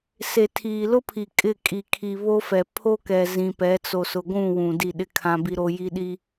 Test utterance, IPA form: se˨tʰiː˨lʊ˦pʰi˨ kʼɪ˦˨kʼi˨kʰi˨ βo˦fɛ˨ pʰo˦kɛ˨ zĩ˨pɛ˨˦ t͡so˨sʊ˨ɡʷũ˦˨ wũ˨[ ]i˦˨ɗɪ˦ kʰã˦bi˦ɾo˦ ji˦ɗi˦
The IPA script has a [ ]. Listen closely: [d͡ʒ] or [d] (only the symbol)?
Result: d